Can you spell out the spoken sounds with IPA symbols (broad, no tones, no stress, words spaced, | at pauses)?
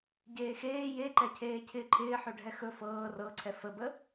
ɟeːxeː jeǃɛcʰeː cʰɪːǃʰɪːħɵ ɖʱɛxɵ fɤː rɤǀʰɛ fəbə